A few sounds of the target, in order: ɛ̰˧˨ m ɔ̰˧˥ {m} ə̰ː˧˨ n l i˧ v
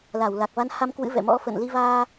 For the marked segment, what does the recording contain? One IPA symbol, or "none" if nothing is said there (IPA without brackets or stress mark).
f